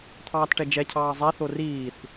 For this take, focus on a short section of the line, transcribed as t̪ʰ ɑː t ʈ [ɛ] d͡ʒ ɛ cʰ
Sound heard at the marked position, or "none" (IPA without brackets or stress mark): ɛ